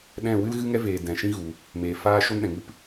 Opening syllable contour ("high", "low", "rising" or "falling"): falling